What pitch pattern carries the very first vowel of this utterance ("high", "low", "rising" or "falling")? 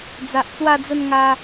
low